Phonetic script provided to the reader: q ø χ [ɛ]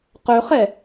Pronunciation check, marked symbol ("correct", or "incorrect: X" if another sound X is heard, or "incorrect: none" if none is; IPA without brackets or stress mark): correct